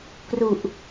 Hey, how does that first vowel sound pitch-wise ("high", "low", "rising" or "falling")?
low